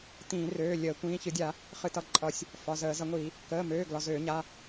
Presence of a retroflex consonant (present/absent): absent